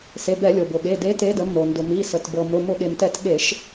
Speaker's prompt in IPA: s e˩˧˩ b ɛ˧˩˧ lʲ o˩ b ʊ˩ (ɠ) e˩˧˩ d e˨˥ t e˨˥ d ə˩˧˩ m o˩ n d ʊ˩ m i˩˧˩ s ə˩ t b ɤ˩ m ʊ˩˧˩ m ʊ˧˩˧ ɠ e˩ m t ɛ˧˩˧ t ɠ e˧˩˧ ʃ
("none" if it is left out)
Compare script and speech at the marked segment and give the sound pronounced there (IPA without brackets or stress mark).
ɠ